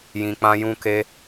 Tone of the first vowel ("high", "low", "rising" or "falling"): low